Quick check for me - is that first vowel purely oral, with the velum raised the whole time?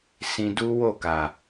no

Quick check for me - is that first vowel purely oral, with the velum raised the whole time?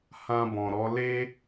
no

